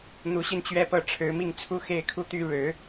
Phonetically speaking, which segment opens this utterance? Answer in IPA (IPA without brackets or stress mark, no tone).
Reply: n̪